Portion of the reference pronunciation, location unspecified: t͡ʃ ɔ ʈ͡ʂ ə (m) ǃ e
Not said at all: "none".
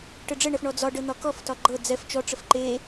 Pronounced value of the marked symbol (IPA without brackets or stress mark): f